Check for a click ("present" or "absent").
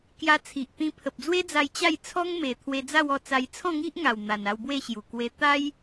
absent